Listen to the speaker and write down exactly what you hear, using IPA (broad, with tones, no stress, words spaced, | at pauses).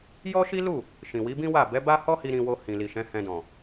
jɔ˦ʃi˦lu˦˨ | ʃĩ˨wi˨˦bĩ˦wa˦˨ bɛ˨˦ba˦hɔ˦hi˧ ɾĩ˧wo˧ hĩ˨li˨ʃɛ̃˨˦ hɛ̃˧dɔ̃˨